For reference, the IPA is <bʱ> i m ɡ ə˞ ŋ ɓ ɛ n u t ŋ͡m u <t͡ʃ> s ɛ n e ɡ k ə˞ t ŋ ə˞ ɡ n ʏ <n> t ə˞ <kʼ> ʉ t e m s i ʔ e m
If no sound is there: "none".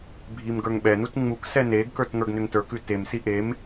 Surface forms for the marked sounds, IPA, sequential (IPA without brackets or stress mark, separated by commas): bʱ, k, ŋ, k